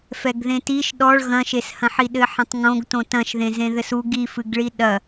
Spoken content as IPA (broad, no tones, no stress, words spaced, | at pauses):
fɛɡðẽtiʃ ɗɔɭ ɣɐ̃ʃeshɐ̃ħi ɗɘħɐ̃tˤŋõɡtõ tɐ̃ʃðẽzẽ ðɘsu ɡifɨɡɭi ɗɐ